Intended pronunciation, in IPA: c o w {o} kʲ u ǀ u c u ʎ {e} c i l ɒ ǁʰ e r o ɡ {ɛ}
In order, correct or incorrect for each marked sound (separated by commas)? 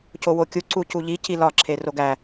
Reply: correct, incorrect, incorrect